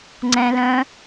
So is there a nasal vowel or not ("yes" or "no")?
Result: yes